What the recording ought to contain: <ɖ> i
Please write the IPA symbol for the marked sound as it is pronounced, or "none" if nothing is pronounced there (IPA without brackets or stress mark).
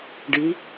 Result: ɖ